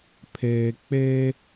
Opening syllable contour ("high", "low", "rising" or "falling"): low